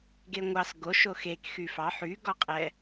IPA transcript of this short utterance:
ɡ e ŋʷ ɑ s ɡ o ʃ o x e k x y f ɑ ħ y ɡ ɔ qʼ ɛ

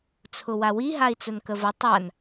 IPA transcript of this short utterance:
t͡sʰ ʊ w a w i ɦ a i̯ t͡s ʊ n k ə v ə tˤ a n

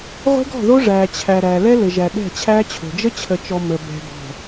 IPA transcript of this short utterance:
ʁʷ e̤˦ ɡ ɔ̤˦˨ ð o˦ ʐ æː˨ t͡ɕʰ æ˨ ɾ æ˨ l ɛ˦ l ɘ˨ ʒ æ˨ ɗ ɛ̤˦˨ t͡ɕʰ æː˦ t͡ɕʰ o̤˨ d͡ʒ ə˦ t͡ɕʰ ə˨ t͡ʃ ɔ˨ m ə˨ b ɛ̤˨ b ɔ̤˨

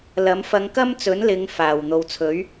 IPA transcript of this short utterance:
l ɐ˨˥ m f ɐ˧ ŋ k ɐ˥ m t͡s ɵ˨˥ n l ɪ˨˧ ŋ f aː˨˩ w n̪ o˨ w t͡sʰ ɵ˨˥ ɥ

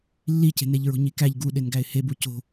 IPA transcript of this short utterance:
lː i c e̤ n e ʎ ɹ o̤ ɲ i k æ ʎ ɡ u ɗ e n ɡ æ ɪ̯ h e b u c o̤

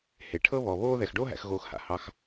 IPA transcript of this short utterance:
h e˩ ʈʰ ɤ˦ β ɔ˩ β oː˦ ð ɛ˩ x ɖ oː˦ ɦ æ̰˨ x ɣ oː˨ x h a̰˩ h ɑ˨ x

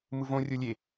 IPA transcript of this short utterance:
m ɯ v õ rʲ o lʲ e

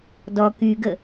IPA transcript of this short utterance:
d ɔ k y ɡ ə

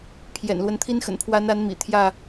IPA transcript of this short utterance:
pʰ j ɛ̰˨˩ n l w ə˦ n t̪ʰ i˦ n x ə̰˨˩ n pʰ w a˨˦ n a˨˦ n m ḭ˨˩ t̪ʰ j ä˥˨

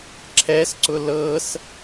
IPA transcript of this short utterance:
ǁʰ ɛ s ǀ ʊ l ɤ s

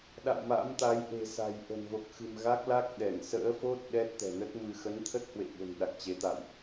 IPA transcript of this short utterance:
ɗ a̰˧˨ w m a̰˧˥ m t̪ a˨˦ j ʔ e̤˨˩ s a̤˨˩ j ʔ ə̤˨˩ n v o˨˩ k̚ x ɨ̤˨˩ m ɣ a˦˥ k̚ l a˦˥ k̚ ɗ ɛ˧˩ ŋ s ə̰ː˧˥ f o˦˥ t̚ ɗ ɛ˦˥ t̚ t̪ ɛ̤˨˩ n ə˦˥ t̚ m ɨ˧ x ə˨˦ n t̪ʰ ə˦˥ t̚ h w ḛ˧˨ ɓ ə̤˨˩ n ɗ a˨˩ k̚ t͡ɕ e˨˦ t̪ a̰˧˨ w ʔ

